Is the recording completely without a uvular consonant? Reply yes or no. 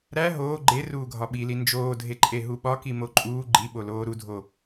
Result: yes